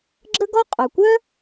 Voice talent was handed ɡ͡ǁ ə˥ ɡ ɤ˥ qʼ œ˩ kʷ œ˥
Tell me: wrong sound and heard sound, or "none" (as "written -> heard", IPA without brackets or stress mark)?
ɤ˥ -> ɔ˥